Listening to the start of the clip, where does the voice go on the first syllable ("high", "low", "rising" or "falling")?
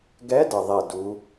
rising